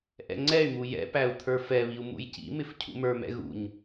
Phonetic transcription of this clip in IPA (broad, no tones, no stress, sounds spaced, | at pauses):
ʔ ɛ̰ ŋ͡ǀ ɛ y̯ m u j ɛ̰ p æ u̯ t̪ʰ ə˞ f ɛ β i u̯ m ṵ j c ḭ m ɪ f cʰ ṵ m ə˞ m ɛ̰ ɣ ṵ ɲ